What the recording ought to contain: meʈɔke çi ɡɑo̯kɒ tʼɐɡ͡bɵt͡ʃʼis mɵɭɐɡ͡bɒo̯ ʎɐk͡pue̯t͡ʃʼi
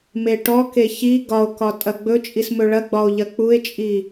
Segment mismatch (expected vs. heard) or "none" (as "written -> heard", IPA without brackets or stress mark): ɑ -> ɒ